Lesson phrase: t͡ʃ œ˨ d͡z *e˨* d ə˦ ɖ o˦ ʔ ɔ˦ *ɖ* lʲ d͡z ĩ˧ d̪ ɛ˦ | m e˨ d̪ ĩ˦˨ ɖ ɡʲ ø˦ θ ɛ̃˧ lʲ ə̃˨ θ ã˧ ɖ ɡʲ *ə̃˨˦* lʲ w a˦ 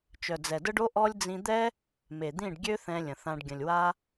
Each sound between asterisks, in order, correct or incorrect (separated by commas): incorrect, incorrect, incorrect